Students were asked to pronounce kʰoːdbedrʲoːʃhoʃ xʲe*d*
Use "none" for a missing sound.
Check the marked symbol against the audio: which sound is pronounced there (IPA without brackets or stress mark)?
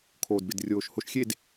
d